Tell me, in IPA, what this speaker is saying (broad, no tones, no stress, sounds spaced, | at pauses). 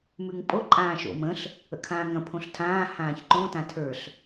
m ʉ ŋ pʼ o ǃʼ ãː ʃ o̰ m ə̃ ɬ | ə̰ kʰ ãː ŋ ɐ̃ pʰ õ ɬ tʰ ãː h ãː ç ǃ õ t ã tʰ ə˞ ɬ